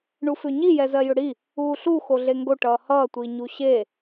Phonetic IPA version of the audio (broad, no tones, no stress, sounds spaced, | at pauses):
ɳ u f ʏ ɲ i j ɛ z ɜ j ʏ ɽ i | uː ɬ u x o ɮ e ŋ ɡ o ʈ ʌː h ʌː tʷ iː ɲ u ɕ e